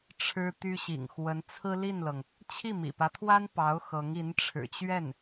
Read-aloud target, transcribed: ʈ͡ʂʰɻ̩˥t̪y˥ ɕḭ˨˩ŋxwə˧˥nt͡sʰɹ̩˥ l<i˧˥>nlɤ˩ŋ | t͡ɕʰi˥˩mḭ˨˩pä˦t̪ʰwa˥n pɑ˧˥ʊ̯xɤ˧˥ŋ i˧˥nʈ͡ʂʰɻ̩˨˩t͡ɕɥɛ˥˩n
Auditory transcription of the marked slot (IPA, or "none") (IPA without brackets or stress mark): i˥˩